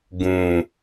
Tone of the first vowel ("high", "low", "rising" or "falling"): low